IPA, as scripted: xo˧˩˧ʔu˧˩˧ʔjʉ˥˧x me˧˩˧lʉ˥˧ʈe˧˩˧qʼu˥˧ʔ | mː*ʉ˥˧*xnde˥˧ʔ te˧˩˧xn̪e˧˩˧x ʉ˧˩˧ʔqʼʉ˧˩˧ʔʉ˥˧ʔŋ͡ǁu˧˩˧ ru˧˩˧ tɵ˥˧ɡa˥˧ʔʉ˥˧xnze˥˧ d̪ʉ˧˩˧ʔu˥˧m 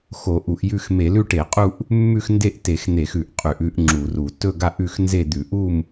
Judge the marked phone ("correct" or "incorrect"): correct